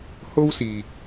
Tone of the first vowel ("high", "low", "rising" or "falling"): high